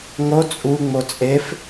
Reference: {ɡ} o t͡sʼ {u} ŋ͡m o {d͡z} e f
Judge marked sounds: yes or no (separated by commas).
no, yes, no